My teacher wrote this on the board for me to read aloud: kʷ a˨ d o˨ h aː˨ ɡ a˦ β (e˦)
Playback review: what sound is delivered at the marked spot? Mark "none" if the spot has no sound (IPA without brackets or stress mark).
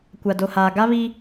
i˦